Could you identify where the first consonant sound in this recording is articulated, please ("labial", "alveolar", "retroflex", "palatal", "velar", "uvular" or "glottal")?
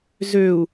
alveolar